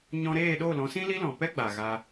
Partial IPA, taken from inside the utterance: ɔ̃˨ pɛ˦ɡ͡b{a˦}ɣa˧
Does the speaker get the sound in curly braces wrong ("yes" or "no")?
yes